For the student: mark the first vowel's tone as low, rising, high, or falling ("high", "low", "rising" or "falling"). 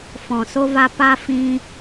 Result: low